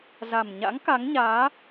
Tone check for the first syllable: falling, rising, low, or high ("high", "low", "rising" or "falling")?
low